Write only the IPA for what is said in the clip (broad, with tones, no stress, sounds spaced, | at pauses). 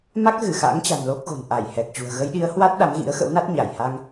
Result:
m a˦˥ k̚ ɣ ɨ˧˩ x a̰˧˥ ŋ t͡ɕ a̤˨˩ n l o˦˥ k̚ ɣ o̤˨˩ n ʔ a˧˩ j h ɛ˨˩ k̚ t͡ɕ ṳ˨˩ ə̯ ɣ ə˨˦ j ɗ i˨˦ ə̯ h w a˦˥ t̚ ɗ a˨˦ m ɣ ḭ˧˥ ə̯ x ə̰˧˥ w n a˦˥ t̚ ɲ a˧˩ j h a˧ ŋ